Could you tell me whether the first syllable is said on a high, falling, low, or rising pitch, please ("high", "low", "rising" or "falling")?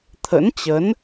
rising